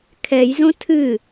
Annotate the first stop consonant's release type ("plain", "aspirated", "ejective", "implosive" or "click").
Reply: aspirated